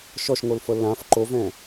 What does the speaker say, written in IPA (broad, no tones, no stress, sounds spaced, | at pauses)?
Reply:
ʃ ɔ ʃ ŋ o l f ɤ l ã f ǃ o v ɛ̃